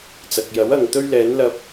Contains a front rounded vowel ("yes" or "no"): no